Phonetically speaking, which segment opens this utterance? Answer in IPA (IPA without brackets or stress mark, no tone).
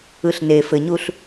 ɯ